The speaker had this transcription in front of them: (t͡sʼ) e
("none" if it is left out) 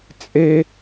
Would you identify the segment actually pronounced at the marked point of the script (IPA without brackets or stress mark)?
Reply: t͡sʼ